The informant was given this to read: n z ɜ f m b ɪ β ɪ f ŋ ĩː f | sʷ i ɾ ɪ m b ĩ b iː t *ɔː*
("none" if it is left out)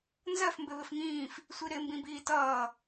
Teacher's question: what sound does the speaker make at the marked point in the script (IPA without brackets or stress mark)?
ʌː